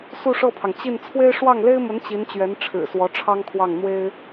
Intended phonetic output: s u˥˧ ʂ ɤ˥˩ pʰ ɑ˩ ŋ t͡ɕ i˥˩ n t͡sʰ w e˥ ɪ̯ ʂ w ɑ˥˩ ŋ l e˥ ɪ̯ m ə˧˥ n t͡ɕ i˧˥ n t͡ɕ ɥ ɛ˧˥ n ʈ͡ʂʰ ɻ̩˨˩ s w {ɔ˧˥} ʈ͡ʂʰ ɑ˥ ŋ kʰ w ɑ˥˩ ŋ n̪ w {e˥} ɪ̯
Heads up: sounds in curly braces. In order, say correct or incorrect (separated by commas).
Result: correct, correct